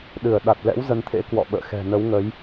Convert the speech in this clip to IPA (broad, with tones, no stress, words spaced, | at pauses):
ɗɨ˧˩ə̯ ɗa˨˩t̚lɛ̰˧˥w zə˨˦nt̪ʰḛ˧˥ kwɔ̰˧˨ɓə̰ː˧˨xɛ̤˨˩ nə˨˦wŋə˨˦j